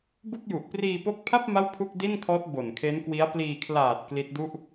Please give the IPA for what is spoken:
b u˥˩ k̚ j u˨˩ ʔ p r iː˧ p o˦˥ k̚ pʰ a˥˩ p̚ m a˥˩ w pʰ u˥˩ k̚ d i˥˩ n kʰ ɔː˦˥ t̚ b o˨˩ n kʰ e˦˥ n k w i˦˥ a̯ p l iː˧ kʰ l aː˨˩ t̚ k l i˦˥ t̚ d u˥˩ ʔ

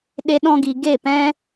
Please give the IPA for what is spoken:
ɗ e˦ ɗ ɔ̃˦ ɡ i˧ ɡ e˦˨ p ɛ̃˦

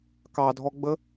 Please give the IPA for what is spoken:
k ɑ dʱ ɔ ɡ͡b ə

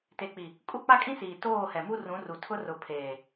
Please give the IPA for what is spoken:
t e˨ k͡p i˨ | kʼ u˦˨ k͡p a˦ kʼ ĩ˦ s iː˨ t oː˦˨ h ɛ˨ m u˦ r ũ˨˦ r u˨ tʰ ʊ˦ r ʊ˨ pʰ eː˨

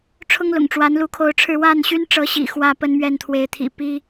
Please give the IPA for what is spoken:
ʈ͡ʂʰ ʊ˦ ŋ l ʊ̰˨˩ ŋ ʈ͡ʂ w a˨˦ n l u˨˦ kʰ o˨˦ ʊ̯ ʈ͡ʂʰ ɻ̩˥˨ w a˥˨ n ɕ y˦ n ʈ͡ʂ ɤ˨˦ ɕ ḭ˨˩ x w ä˥˨ p ə˦ n m ɥ ɛ˥˨ n t̪ʰ w e˨˦ ɪ̯ t̪ʰ ḭ˨˩ p i˦

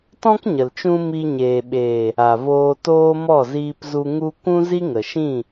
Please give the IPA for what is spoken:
t ɔ̃˦ k ɲ ə˨ l t͡ʃ ũ˧ m i˧ ɲ eː˨ ɓ eː˨ | a˨ v oː˧ t oː˦ m ɔ˦˨ z iː˧ p z u˧ ŋ u˦ kʷ ũ˦ z i˦ ŋ ə˨ ʃ ĩ˦˨

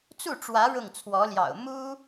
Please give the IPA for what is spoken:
t͡s u˥˩ ʈ͡ʂ w ä˧˥ ɻ ʊ˥˩ ŋ t͡sʰ w ɔ˧˥ l j ɑ̰˨˩ ʊ̯ m u˥

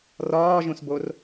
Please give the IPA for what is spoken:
r ɒː ʒ ũ s b o r

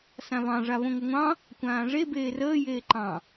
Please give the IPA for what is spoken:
s ã β ɑ̃ ʐ a β õ ŋʷ ɘ ŋʷ ɑ̃ | kʷ ãː ʐ e b eː r əː j eː ǃ ɑ̃

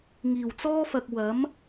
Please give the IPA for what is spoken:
ŋ iː˨˩ w t͡s ɔː˥ f ɐ˨ k̚ w ɐ˨˥ m

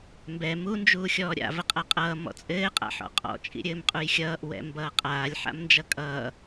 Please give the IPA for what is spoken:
m b ɛ m u n d͡ʒ uː xʲ ɔː ɾʲ a̰ v ə qʼ a qʼ ʌː m ɔ̰ t͡sʼ ɘː qʼ a̰ ħ ɔ̰ qʼ ɔ̰ t͡ʃʼ ḭ ɾʲ ɘː m qʼ u j xʲ ʌː ʔ w ɛ̰ m b ʌː qʼ aː lʲ ħ a̰ m n d͡ʒ ʌ kʼ ʌː

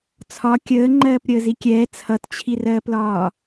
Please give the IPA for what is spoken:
t͡sʰ ɒ kʲ əː ŋ͡ǃ ɜː p ɾʲ əː z i kʲ ɛː t͡sʰ ʌ t t͡ɕʰ i r ɜː p l ɒː

